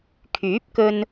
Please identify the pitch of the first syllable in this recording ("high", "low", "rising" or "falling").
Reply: rising